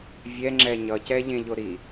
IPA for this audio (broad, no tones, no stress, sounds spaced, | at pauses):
vʲ ɛ ŋ͡ǁ ɛ ɲ ʌ c ɛ ʎ ẽ ʎ o ɾ i